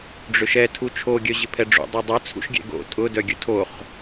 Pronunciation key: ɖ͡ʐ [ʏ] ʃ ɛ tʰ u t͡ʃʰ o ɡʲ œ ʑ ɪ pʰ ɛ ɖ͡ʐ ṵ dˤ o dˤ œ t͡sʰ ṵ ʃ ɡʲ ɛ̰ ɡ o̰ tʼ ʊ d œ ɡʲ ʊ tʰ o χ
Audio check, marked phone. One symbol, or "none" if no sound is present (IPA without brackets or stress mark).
ʏ